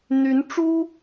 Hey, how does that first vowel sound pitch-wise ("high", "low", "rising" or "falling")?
rising